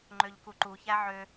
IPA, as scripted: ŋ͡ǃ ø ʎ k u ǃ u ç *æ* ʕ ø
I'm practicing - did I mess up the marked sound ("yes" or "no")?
no